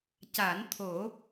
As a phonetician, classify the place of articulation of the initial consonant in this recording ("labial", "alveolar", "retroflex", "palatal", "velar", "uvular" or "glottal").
palatal